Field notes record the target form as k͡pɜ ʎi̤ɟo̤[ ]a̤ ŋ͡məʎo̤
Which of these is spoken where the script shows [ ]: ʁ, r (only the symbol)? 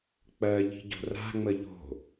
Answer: r